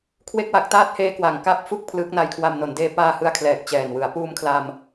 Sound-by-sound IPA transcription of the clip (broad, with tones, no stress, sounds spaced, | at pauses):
kʰ w e˥˩ k̚ w a˦˥ k̚ t aː˦˥ t̚ h eː˧ k w a˨˩ ŋ k a˥˩ p̚ f u˥˩ k̚ pʰ l ɯː˦˥ k̚ n a˧ j kʰ w a˧ m n o˩˦ n d eː˦˥ p aː˧ h ɯ˧ a̯ kʰ l ɛː˨˩ k̚ t͡ɕ ɛː˨˩ n w ɯ˩˦ a̯ p uː˧ m kʰ l a˧ m